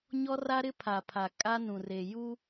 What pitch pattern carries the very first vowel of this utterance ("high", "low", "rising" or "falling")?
high